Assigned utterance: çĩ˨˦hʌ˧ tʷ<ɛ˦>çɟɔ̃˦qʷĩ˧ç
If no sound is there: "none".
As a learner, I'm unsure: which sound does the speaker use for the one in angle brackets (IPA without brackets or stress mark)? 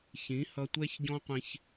ɛ˦